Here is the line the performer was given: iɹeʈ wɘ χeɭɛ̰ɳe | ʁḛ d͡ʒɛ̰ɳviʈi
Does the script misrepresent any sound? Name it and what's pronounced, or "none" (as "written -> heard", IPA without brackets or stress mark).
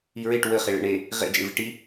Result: none